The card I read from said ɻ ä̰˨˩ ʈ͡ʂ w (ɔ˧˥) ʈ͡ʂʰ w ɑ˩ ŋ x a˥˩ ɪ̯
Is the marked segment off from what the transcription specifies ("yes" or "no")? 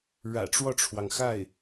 yes